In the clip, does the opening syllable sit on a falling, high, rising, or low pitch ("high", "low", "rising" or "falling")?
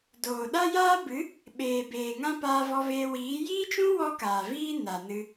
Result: low